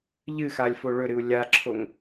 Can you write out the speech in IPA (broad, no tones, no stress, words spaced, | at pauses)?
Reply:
ʎɨxalʲfo ɭɵɾɨu̯ lʲaǁʰoŋ